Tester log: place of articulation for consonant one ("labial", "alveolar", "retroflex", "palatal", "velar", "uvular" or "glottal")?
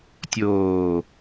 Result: alveolar